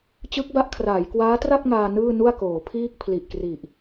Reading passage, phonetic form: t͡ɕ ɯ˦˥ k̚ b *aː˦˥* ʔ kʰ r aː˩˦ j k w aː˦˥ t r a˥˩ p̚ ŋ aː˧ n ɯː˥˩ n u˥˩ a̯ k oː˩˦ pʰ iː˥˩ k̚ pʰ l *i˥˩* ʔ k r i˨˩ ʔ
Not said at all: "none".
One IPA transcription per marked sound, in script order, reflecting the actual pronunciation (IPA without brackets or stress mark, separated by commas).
a˦˥, i˨˩